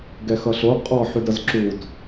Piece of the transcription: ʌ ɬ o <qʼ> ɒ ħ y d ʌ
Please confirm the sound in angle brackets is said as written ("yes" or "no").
yes